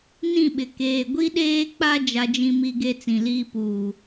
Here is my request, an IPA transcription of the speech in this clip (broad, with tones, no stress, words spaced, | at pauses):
nĩ˦˨ɓɪ˨ keː˨ɡʷi˦ɗeː˦k͡pa˦ d͡ʒa˦d͡ʒĩ˦mi˦ɡe˦ t͡sĩ˨liː˦ puː˨